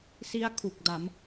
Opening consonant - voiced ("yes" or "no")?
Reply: no